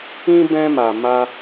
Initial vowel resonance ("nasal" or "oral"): nasal